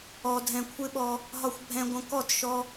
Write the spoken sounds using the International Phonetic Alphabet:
ɔ˨ dʱ ɛ̃˨ kʷʰ ɪ˦ ɓ ɔ˧ | ɦ ɒ˧ xʷ bʱ ɛ̃˧ ɡʷ ə̃˧ k ɔ˦˨ t ʃ ɔ˧

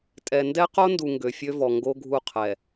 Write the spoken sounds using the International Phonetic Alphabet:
tʼ ɛ˨ n d ɛ˦ q o˦ n d u˨ ŋ ɡ ø˨ fʲ ø˦ v ɔ˨ ŋ ɡ o˦ ɡʱ u˦˨ qʰ ɛ˨

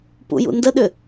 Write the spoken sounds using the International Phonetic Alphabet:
p ṵ j ṵ n d ə ɗ ʏ

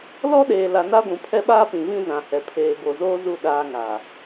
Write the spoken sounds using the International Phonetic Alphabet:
l ɔ˦ ɗ eː˨ l a˨ n a˦ ɡʷ ũ˨ pʰ ɛ˦ ɓ aː˦ p ĩ˨ v ĩ˦ z ã˨ h ɛ˨ pʰ eː˨ b o˨ z oː˦ z u˦˨ ɗ aː˦ ŋ a˨

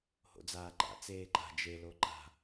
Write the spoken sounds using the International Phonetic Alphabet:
h o̰ d͡z aː ǃ a̰ t͡s eː ǃ a̤ d͡ʒ e l o ǃ a̤

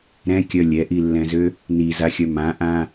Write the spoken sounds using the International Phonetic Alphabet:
ɾ ɛ̃ kʲ œ lʲ ɛ ʔ i lː ɛ̃ z ø | n i z a xʲ œ m ã ʔ ã

